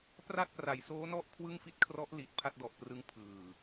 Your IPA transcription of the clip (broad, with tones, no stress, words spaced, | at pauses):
pra˥˩t̚pra˩˦jsoː˦˥nɔ˥˩ʔ kʰwɯ˥˩ŋfi˥˩t̚kʰrɔ˦˥ʔ li˨˩t̚ pʰa˥˩t̚dɔ˨˩ʔprɯ˦˥ŋ pʰɯː˨˩